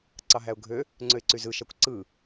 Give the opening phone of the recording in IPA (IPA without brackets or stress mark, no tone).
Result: ǀ